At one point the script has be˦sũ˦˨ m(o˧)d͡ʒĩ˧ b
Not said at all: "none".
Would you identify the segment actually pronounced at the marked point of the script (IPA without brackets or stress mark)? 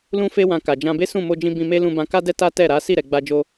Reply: o˧